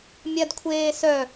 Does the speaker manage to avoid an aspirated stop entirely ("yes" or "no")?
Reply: no